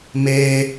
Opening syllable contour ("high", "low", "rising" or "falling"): low